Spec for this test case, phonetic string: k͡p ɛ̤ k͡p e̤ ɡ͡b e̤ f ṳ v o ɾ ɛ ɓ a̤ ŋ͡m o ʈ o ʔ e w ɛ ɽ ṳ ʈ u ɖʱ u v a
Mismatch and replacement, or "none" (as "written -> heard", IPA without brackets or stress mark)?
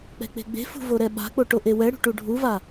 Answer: ŋ͡m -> k͡p